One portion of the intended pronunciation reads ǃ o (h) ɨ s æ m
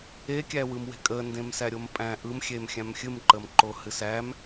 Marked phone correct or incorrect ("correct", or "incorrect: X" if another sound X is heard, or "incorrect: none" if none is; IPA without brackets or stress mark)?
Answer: correct